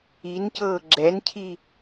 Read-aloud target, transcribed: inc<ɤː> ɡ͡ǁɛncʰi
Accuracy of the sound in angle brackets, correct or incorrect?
correct